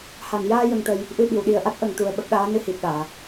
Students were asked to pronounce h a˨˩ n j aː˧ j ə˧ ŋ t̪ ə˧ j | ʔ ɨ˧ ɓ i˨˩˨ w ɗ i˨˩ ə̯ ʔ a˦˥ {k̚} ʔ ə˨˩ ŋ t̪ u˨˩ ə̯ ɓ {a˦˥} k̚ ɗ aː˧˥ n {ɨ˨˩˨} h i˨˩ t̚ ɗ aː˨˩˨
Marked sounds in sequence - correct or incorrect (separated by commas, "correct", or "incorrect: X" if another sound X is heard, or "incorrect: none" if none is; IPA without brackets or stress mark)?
incorrect: t̚, incorrect: ə˦˥, incorrect: ɨ˧